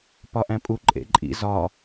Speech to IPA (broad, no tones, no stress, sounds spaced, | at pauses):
p ɒ ʔ æ̃ pʼ u ǃʼ ḛ ǃʼ ḭ z ɒ